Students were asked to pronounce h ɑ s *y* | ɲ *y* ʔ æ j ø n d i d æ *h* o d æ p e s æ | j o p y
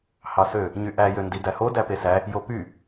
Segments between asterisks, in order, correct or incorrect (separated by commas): incorrect, correct, correct